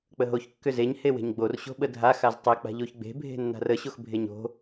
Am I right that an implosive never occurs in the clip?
no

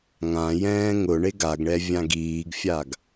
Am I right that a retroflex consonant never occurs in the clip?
no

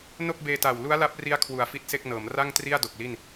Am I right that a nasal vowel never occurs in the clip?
yes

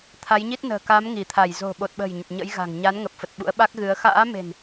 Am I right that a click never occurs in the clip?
yes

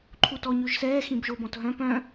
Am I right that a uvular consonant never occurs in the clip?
yes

